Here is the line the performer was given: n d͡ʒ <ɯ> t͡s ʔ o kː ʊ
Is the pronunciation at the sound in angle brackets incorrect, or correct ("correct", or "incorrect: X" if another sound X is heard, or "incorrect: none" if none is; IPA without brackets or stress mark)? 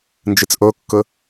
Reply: correct